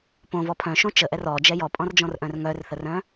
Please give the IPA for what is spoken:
p õ v ɔ pʰ œ̃ ʃ õ t͡ʃ ə ʔ ɛ r ɔ d͡ʒ ɛ j ɔ pʼ ɔ̃ r d͡ʒ ɔ̃ r ʔ œ̃ r ŋ œ r θ ə r œ̃

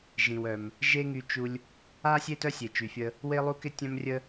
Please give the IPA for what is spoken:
ʒ ĩ˩ w œ˩ m | ʒ e˥ ŋ y˧ t͡ʃ u˧ lʲ | a˥ sʲ e˥ t œ˥ sʲ e˩ t͡ʃ y˩ fʲ ə˧ | w e˥ lˠ u˥ k ɪ˥ tʲ œ̃˥ m rʲ ə˥

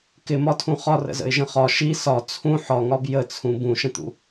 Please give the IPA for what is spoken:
k ɪ m ɒ tʰ ũ χ ɒ r ə̰ z ə̰ ɪ̯ ʒ ə̃ χ ɒ ʃ i s ɒ t͡sʰ ũ ħ ɒ ŋ ɒ b j ə t͡sʰ ũ b ũ ʃ ə̃ t̪ ṵ

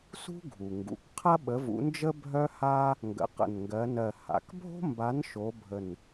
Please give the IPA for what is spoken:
s ṳ˥ ɡʱ u˩ ŋ ɡ ṵ˩ k qʰ ɐ˥ ɓ ə˨˥ v ṵ˨˥ n d͡ʒ ə˥ bʱ œ˥ h a˥ | ŋ ɡ ə̰˨˥ q ə̰˧˩ n ŋ ɡ ɜ˨˥ n ɜ˧˩ h a̰˩ k bʱ o̤˥ m b a˨˥ n ʃ o˨˥ bʱ ə˧˩ n

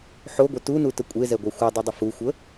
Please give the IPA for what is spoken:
ħ o ɡʷ ə t u n u t ə kʷʼ e z ɛ ɡʷ a xʷ a dˤ u dˤ ɪ f u xʷ ə

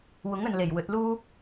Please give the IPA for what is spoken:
w ʊ˨˥ ŋ ɵ˨ n l e˨˩ j w ɵ˨˥ t̚ l uː˥

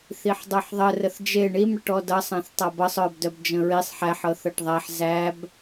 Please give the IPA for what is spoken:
θ i ħ dˤ ɤ ħ ðˤ ə r ə θ d͡ʒ e ɳ i m ɽ ə ʈ ɔ d ʌ sˤ ã θ tˤ a b ʌ sˤ œ b d œ b d͡ʒ ə̃ ɹ i sˤ ħ æ ħ ɤ θ ɤ ʈ ðˤ æ ħ z æ b

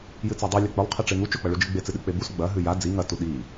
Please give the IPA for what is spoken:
j ɨ t͡s a dˤ ʉ lʲ ɐ k͡p ɵ lˠ qʰ e ʈ͡ʂ e ŋ u t͡ʃ ɵ k͡p ɐ ɭ u d͡ʒ ɨ ɡ͡b e t͡s ɨ ɗ ɨ k͡p e b u s ɡ͡b ɐ ɦ ʉ j a d͡z i ŋ ɐ t u ɗ i

